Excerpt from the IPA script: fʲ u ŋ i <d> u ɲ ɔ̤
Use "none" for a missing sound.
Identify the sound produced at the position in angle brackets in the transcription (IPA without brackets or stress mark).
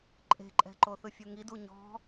d